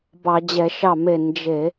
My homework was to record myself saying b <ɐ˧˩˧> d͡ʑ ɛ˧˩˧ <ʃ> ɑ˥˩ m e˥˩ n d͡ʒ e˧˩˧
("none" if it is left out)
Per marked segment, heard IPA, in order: ɑ˧˩˧, ʃ

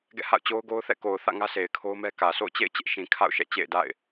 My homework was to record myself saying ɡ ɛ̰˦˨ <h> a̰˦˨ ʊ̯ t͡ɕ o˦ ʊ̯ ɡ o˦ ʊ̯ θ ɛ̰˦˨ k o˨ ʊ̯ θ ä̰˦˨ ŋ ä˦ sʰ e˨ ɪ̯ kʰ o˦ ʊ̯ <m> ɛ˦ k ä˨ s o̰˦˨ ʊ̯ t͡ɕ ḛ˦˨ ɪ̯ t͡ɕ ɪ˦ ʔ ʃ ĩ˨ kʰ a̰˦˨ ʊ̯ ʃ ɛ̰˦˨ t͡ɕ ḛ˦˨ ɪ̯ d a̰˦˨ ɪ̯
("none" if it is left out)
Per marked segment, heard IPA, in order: h, m

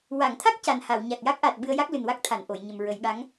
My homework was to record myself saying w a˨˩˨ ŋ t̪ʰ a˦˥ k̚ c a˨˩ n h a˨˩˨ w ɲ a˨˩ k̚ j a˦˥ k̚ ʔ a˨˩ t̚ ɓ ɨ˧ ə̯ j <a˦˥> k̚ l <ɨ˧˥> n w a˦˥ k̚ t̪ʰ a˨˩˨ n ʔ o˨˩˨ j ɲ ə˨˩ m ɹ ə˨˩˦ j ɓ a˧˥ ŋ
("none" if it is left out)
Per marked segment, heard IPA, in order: a˦˥, ɨ˨˩

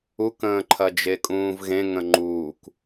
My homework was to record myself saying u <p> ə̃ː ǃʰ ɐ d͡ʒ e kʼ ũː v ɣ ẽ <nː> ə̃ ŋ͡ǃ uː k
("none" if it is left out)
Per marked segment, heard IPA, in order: k, ŋ

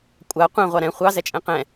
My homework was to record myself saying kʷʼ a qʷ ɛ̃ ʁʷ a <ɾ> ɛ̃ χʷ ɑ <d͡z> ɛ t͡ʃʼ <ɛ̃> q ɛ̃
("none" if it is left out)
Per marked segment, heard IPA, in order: ɾ, z, ɛ̃

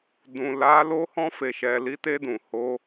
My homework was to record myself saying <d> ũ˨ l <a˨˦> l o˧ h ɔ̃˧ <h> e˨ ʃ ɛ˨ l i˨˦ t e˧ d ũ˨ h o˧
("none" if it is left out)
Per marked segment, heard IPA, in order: d, a˨˦, f

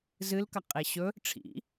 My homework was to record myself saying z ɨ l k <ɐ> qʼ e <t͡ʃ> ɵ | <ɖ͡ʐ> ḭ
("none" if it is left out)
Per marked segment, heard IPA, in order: ɐ, ɕ, ʈ͡ʂʰ

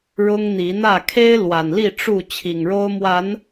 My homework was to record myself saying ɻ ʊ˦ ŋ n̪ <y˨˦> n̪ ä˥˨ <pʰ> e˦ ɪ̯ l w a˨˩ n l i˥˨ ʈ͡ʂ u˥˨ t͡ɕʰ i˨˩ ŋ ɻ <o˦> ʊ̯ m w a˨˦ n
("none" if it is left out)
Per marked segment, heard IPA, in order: i˨˦, kʰ, o˦

